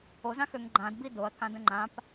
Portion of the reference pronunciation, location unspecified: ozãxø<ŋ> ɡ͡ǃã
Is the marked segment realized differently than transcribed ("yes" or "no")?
no